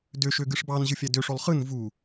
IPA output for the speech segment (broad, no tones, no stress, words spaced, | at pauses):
døʃøɡɯʂ bɑnʑɯfʲæ døʂolˠ χɯn vu